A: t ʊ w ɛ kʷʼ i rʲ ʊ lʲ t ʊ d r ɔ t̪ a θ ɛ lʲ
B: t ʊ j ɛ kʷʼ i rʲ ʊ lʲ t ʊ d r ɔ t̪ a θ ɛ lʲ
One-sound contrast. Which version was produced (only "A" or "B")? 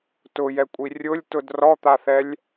B